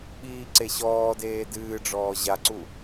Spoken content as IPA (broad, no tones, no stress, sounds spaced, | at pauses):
ɓ iː ǀ e ɕ ɔː d eː d ɨː ɖ͡ʐ ɔː ʑ a ǀ u